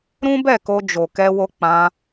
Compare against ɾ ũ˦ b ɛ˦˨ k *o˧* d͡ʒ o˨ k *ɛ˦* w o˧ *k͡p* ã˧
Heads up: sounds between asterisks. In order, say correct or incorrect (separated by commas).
correct, incorrect, correct